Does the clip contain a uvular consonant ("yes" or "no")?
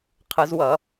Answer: yes